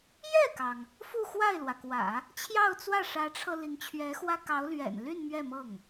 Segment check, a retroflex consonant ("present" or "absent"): present